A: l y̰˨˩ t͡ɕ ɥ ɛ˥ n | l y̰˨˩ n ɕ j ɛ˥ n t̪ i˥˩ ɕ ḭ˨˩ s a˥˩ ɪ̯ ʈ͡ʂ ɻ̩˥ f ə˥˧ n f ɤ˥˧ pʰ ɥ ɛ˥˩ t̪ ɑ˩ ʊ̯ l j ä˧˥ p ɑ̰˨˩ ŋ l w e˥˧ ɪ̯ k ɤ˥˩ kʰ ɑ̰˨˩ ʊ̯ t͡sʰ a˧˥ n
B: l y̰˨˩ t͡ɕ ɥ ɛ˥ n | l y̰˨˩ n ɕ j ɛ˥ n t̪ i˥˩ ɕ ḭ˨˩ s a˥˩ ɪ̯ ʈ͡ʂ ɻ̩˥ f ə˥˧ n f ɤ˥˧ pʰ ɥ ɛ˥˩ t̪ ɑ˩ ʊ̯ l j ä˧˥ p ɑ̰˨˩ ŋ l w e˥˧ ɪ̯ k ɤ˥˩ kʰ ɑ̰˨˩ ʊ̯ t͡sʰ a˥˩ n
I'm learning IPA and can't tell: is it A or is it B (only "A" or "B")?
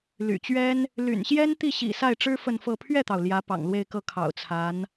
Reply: A